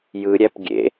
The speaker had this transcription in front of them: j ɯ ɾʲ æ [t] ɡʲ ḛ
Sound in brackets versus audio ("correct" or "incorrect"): incorrect